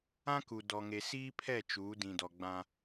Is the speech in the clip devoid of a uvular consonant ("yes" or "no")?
yes